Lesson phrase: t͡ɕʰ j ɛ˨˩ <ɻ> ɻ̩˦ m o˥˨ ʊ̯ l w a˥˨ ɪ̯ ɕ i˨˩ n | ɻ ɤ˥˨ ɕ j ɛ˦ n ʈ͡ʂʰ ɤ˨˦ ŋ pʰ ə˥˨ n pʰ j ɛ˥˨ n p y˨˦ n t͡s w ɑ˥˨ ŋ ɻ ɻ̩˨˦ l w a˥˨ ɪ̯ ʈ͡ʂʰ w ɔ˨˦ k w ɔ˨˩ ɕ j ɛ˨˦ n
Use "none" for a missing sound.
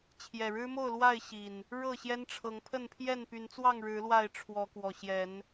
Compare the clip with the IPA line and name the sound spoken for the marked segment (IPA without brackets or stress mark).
ɻ